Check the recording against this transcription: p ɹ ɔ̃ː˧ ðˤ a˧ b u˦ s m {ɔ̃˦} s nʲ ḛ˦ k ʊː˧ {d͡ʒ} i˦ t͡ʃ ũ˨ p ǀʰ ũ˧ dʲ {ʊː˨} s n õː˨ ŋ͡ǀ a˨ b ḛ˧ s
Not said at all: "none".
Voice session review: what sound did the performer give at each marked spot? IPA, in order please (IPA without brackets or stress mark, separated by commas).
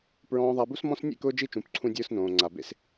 ɔ̃˦, d͡ʒ, ʊː˦